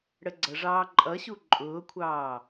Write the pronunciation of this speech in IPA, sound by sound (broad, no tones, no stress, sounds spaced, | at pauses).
ɽ ə ɡ͡ǀ ʌ ʐ ɑː ǃʼ ʌ ɕ u ǃʼ ʊː kʷʰ ɑː